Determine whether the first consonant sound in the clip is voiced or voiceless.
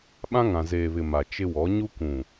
voiced